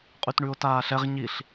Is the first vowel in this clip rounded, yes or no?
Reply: yes